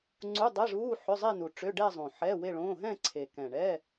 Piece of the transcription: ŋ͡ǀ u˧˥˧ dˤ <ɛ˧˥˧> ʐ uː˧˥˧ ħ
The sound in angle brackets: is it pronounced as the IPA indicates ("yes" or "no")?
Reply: yes